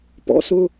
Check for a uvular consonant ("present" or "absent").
absent